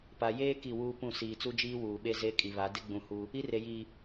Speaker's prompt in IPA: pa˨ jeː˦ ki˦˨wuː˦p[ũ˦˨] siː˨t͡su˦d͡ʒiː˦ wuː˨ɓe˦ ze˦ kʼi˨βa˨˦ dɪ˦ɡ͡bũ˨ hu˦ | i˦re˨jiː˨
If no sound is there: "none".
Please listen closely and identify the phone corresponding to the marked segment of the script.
ũ˦˨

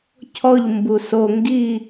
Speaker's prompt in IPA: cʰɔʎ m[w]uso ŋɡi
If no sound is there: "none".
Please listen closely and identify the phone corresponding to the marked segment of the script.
b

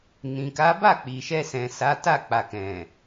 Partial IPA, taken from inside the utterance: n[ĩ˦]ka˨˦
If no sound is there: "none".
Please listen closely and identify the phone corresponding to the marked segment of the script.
ĩ˨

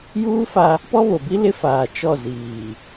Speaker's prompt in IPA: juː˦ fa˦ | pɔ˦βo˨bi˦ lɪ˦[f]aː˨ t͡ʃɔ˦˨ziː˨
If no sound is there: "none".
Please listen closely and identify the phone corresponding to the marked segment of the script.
f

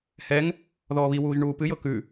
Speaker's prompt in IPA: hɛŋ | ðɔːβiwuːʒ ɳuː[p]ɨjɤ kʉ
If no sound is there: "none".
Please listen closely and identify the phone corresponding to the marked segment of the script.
p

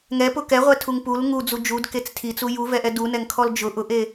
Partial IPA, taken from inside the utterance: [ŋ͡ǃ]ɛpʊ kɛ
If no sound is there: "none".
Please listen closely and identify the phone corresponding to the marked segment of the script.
ŋ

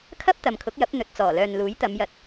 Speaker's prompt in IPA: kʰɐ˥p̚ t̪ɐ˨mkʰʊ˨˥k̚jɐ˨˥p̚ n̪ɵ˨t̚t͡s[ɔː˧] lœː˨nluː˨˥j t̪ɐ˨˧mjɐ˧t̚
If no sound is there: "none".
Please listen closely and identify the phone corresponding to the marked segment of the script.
ɔː˨˩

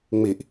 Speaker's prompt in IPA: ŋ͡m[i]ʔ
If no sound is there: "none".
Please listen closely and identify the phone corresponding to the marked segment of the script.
i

